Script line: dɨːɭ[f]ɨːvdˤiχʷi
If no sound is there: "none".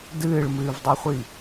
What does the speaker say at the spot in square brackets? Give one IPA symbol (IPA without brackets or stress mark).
m